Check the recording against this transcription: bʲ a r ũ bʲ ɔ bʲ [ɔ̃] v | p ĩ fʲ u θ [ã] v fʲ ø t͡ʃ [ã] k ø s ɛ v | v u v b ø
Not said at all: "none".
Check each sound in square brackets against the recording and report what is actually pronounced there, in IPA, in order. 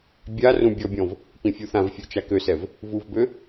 ɔ̃, ã, a

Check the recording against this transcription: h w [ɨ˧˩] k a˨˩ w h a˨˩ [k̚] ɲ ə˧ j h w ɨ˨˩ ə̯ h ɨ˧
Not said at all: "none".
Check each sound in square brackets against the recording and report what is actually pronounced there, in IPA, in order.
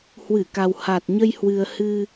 ɨ˧˩, t̚

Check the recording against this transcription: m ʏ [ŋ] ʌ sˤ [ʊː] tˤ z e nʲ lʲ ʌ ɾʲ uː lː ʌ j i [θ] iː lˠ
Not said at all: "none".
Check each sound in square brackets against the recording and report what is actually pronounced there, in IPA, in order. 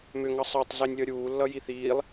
ŋ, əː, θ

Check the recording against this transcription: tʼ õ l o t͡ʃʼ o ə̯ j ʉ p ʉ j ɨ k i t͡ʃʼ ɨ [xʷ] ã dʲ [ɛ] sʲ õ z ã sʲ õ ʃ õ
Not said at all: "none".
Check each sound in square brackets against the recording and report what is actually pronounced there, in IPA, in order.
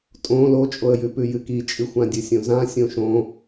xʷ, ɨ

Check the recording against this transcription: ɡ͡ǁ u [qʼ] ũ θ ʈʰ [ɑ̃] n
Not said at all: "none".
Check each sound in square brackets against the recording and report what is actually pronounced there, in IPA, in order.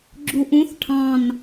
ʔ, ɑ̃

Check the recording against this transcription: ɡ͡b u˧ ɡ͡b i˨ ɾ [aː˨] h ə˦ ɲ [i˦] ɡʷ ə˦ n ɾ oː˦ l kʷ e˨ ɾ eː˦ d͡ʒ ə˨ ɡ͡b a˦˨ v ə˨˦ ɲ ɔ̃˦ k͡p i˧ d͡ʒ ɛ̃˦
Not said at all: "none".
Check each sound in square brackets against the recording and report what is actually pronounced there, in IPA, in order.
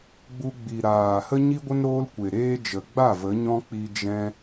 aː˨, i˦

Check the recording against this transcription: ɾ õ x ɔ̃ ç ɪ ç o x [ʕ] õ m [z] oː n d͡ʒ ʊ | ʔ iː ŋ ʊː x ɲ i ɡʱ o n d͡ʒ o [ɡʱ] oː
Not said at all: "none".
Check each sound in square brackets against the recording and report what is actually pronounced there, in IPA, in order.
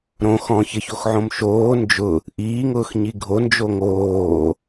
ʕ, ʃ, ŋ

